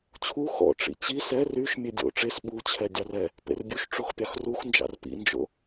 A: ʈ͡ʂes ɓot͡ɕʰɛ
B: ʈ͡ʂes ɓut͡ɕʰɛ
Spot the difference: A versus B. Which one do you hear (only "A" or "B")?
B